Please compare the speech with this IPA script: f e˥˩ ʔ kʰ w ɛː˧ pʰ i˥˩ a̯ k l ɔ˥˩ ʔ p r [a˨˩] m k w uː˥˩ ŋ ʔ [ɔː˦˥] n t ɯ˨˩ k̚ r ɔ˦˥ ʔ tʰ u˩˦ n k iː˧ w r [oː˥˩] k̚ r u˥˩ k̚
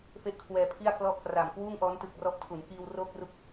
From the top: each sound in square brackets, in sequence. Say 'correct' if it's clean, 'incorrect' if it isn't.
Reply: correct, correct, correct

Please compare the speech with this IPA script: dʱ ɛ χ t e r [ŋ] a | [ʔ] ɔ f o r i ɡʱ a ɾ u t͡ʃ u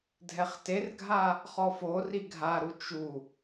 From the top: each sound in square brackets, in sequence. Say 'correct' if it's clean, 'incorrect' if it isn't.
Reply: incorrect: ɡʱ, incorrect: χ

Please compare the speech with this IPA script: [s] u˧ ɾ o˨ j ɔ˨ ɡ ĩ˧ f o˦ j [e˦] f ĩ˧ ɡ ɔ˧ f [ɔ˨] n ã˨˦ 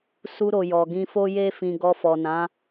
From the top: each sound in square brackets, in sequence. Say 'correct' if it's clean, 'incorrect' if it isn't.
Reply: correct, correct, correct

